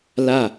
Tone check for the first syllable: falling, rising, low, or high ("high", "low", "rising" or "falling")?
falling